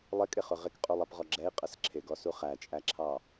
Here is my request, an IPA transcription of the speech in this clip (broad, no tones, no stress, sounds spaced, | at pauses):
lˠ ɪ kʼ ɪ χ ʊ ʁ ɪ k qʼ u lˠ ɛ p ʁ ɔ ɡ͡ǁ ɛ i̯ qʼ ə s ǁʰ ɪ ɡ ɔ s u χ æ t͡ʃʼ æ ǁʰ ɑ